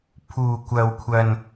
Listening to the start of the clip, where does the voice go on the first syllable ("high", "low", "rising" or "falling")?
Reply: low